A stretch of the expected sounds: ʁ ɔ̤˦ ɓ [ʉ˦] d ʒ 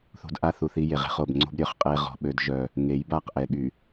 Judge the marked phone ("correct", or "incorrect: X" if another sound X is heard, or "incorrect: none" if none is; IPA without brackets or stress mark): incorrect: ø˦